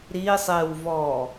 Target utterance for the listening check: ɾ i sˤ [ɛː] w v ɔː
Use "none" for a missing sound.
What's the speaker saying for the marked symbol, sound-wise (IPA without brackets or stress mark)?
ɪː